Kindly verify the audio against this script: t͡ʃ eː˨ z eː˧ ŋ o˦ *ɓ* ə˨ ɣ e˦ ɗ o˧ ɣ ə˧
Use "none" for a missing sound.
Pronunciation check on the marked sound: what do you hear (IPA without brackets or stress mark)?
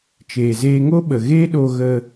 ɓ